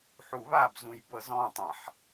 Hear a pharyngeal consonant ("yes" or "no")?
yes